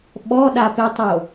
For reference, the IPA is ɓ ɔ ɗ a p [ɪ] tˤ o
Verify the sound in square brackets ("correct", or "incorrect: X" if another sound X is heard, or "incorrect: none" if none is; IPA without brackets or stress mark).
correct